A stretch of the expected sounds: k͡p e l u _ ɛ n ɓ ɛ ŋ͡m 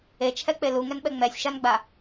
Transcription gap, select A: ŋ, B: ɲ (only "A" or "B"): A